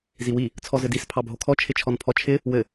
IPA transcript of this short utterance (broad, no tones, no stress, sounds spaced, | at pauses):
z i w i | t͡sʰ ɔ z ɘ d i s pʰ ɑ bʱ o kʰ ɔ t͡ʃʰ ɪ t͡ʃʰ ɔ n pʰ ɔ t͡ʃʰ ɪ | w ɘ